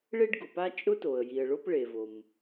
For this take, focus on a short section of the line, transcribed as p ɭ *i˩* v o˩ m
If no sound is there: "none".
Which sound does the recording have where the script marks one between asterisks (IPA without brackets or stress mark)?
e˩